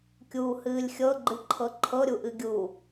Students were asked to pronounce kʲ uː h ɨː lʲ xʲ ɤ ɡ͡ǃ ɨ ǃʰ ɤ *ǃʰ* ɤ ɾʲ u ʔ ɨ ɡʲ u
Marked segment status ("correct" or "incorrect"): correct